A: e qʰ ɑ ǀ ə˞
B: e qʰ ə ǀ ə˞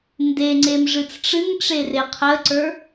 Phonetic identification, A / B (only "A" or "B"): B